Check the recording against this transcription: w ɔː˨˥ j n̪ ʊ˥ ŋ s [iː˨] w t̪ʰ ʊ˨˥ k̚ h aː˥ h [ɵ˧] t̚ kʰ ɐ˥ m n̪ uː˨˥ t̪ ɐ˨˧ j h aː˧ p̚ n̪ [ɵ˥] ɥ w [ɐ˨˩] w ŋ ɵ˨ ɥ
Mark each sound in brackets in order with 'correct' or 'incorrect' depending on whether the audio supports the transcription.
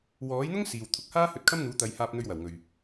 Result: correct, correct, incorrect: ɵ˧, correct

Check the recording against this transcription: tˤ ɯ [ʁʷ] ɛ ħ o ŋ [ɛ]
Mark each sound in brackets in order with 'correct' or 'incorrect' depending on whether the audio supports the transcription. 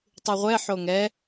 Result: correct, correct

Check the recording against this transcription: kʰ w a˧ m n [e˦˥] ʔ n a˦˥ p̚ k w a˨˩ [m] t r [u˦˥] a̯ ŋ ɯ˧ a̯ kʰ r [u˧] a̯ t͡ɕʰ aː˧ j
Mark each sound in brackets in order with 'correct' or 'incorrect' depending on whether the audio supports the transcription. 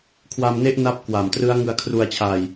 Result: correct, correct, incorrect: ɯ˦˥, correct

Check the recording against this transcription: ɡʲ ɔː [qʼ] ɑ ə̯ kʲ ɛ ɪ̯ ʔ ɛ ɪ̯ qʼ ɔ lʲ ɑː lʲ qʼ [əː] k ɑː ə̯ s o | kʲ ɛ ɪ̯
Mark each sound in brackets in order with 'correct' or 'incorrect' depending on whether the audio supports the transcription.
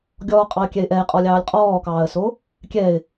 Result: correct, incorrect: ɔː

